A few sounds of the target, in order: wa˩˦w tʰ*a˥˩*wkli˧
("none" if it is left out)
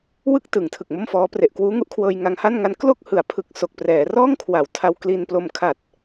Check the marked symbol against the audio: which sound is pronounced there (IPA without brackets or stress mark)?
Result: a˧